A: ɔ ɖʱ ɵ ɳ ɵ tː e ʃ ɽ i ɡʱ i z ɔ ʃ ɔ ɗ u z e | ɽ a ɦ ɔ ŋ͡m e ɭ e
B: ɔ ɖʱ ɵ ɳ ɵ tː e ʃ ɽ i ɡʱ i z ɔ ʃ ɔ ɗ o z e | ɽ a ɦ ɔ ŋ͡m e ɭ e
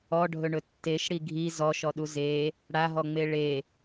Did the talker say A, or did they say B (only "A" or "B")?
A